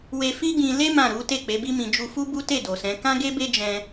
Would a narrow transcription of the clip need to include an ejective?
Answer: no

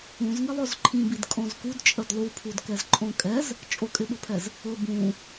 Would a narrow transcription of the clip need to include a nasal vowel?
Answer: yes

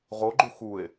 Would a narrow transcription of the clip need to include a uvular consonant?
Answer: yes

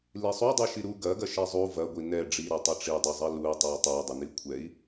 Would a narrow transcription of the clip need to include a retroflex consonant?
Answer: yes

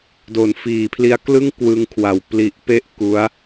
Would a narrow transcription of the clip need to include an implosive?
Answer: no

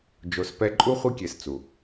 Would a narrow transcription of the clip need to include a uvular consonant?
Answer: yes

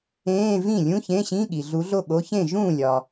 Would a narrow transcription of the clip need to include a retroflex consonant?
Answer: no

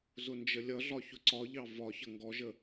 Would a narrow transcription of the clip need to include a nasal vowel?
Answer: no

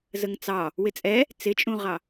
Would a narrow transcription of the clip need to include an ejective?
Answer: yes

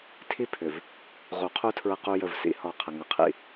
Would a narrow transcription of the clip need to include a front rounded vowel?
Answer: yes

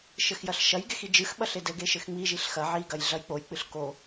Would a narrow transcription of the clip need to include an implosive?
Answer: yes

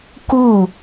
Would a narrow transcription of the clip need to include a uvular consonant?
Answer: no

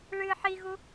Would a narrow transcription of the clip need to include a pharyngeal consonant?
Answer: yes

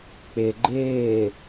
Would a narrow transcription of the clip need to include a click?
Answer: yes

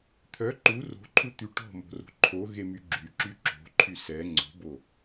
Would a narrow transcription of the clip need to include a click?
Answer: yes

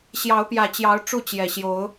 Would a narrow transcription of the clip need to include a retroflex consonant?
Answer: yes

